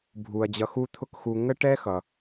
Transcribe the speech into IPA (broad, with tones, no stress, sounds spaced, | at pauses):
bʱ u˩ ɐ̯ d͡ʑ ʌ˧ x u˥ t̪ʰ ʊ˥ k x u˧ ŋ ə˥ ʈ ɛ˥ x ʌ˩